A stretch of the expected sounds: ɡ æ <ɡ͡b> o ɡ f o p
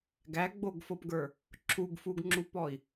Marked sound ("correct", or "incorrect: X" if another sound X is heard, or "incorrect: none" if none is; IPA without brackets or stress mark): correct